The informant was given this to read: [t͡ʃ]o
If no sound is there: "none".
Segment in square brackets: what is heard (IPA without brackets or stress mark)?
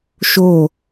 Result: ʃ